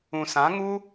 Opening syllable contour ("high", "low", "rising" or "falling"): low